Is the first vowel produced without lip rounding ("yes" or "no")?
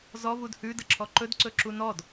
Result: no